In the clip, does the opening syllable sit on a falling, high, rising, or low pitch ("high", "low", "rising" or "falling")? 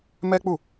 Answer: high